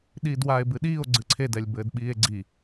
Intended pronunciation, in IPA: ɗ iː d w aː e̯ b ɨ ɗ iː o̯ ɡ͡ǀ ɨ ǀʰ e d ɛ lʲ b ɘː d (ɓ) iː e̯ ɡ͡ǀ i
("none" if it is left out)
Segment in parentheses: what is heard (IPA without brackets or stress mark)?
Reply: ɓ